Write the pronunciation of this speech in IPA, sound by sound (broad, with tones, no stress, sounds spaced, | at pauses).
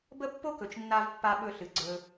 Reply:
b ə˦ pː o˦ k ɵ˨ t͡ʃ nː a˧ v pː a˧ ɓ ɵ˧ ɬ ɨ˨ ɡ͡ǀ ɵ˧